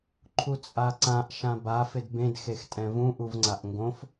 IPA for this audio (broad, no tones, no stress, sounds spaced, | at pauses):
ǃʰ u t͡sʼ a ǀ ã ʔ ʃ ã b a f ɪ d b ẽ d x e x tʼ ɛ̃ v ũ ʔ u v ŋ͡ǀ a ʔ ŋ ɡ õ f